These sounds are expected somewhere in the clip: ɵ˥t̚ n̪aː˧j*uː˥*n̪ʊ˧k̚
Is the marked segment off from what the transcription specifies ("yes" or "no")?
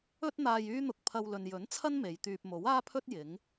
yes